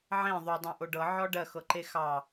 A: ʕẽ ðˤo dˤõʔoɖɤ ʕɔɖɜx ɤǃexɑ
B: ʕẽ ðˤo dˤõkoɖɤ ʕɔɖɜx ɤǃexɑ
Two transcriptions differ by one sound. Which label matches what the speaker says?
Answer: A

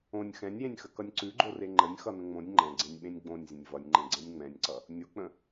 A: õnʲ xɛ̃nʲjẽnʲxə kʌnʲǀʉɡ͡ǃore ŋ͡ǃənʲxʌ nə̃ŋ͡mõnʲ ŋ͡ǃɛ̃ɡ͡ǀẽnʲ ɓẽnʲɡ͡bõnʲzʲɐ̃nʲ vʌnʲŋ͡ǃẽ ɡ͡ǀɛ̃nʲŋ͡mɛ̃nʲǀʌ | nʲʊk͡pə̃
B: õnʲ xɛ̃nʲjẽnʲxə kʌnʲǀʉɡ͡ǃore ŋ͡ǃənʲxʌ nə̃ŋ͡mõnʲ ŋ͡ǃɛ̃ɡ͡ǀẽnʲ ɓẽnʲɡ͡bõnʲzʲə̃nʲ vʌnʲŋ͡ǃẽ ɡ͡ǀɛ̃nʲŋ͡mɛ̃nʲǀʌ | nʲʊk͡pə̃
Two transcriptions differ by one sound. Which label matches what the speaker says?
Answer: B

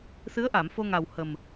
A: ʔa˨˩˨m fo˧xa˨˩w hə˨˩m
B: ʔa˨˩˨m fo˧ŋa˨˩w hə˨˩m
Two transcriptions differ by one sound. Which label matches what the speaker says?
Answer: B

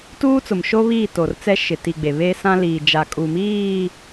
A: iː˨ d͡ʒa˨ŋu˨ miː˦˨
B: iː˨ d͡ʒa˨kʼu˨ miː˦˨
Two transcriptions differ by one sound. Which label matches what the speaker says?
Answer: B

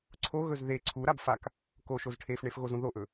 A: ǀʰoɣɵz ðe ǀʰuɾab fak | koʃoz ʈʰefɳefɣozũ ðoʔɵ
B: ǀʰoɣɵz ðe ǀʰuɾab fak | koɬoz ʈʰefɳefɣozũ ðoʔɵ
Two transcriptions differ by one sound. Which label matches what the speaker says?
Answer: A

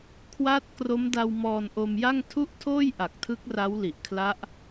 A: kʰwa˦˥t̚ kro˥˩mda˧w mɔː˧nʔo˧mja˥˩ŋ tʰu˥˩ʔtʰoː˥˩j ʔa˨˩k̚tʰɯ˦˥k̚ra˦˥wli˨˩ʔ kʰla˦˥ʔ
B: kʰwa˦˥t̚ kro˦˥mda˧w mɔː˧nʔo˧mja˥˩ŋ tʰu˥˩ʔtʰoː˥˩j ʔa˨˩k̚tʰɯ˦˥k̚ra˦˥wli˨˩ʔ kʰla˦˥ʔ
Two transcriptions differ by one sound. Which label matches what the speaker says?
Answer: B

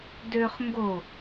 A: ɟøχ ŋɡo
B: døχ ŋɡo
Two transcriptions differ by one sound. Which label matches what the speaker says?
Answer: B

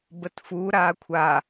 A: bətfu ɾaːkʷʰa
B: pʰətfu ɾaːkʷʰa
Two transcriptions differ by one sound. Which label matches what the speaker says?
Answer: A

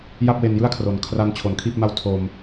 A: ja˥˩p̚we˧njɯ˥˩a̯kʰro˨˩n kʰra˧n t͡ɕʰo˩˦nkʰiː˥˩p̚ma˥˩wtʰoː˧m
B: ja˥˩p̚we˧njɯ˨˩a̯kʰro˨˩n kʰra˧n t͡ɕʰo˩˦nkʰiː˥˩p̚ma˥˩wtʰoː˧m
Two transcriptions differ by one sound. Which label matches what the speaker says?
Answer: A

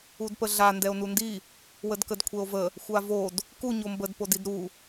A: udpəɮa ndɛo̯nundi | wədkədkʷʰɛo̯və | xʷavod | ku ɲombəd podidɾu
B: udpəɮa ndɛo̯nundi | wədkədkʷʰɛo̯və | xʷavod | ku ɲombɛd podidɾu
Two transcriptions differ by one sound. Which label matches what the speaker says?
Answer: A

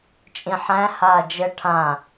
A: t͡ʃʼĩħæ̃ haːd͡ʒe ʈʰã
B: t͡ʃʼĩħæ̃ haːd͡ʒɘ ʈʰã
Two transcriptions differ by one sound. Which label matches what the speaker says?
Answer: B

